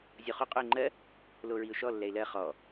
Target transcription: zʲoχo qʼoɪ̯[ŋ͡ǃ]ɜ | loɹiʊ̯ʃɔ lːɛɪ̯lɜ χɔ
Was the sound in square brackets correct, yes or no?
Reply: yes